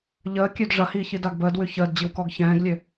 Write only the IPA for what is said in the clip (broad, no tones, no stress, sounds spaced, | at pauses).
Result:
ʎ əː kʲ ø d ʐ ɐ h iː ç i d a ɡ b əː d w ʉ ç əː d d͡ʑ i w k ɔ ɡ ç ɛ̃ː ɡ lʲ ø